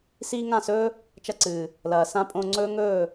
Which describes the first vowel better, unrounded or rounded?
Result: unrounded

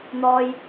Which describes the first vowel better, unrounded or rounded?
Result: rounded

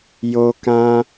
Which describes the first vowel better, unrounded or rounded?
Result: rounded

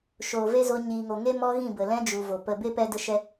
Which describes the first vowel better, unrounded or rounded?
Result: rounded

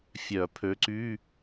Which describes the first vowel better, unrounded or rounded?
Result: rounded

